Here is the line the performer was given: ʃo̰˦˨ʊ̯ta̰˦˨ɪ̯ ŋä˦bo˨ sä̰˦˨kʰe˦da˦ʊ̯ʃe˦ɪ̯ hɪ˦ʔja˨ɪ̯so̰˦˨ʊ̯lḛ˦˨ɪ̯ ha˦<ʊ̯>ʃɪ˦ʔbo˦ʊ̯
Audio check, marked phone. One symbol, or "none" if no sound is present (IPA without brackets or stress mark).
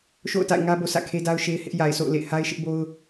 ɪ̯